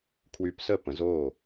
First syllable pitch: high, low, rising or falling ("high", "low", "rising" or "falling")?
rising